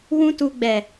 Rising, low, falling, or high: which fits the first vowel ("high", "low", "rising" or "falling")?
high